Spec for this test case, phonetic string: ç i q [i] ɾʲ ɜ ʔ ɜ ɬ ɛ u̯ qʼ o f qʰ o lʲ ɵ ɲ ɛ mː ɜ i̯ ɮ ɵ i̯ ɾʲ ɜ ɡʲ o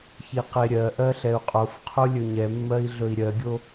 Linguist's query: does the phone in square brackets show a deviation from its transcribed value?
yes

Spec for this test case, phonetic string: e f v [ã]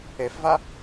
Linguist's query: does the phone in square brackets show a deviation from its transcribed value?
yes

